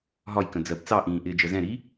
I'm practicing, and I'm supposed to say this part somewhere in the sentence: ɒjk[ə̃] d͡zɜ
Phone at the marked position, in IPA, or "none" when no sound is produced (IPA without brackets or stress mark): ə̃